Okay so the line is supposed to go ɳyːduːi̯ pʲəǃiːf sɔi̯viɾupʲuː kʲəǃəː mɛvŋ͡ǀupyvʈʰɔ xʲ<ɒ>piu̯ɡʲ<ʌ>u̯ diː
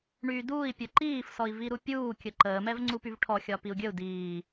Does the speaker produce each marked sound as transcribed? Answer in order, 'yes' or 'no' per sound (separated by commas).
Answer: yes, no